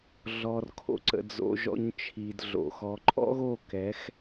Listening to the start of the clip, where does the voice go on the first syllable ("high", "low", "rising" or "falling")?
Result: low